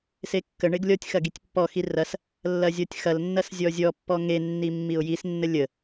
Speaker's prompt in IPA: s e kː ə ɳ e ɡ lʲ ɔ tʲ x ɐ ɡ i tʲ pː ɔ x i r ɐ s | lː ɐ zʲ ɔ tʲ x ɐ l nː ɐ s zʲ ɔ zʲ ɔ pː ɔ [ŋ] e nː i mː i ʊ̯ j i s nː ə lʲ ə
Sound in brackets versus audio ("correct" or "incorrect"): correct